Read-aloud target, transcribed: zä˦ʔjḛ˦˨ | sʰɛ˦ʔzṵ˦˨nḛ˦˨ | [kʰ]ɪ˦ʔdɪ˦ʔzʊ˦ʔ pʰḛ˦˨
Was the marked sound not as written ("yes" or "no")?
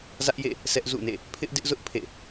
yes